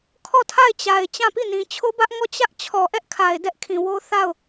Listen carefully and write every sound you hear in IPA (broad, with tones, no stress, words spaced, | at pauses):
kʰɔ˦˨tʰa˦˨ɪ̯t͡ɕa˨ɪ̯ t͡ɕã˦˨pi˦˨nĩ˨ t͡ɕʰo˦bä˦ʔŋɔ˦˨ t͡ɕä˦ʔ t͡ɕʰɔ˨ʔɛ˦ʔkʰa˨ɪ̯ dɛ˦ʔkʰĩ˨wo˦ θa˦˨ʊ̯